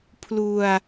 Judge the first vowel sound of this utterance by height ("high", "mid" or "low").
high